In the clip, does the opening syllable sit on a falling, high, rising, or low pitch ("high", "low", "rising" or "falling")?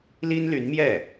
high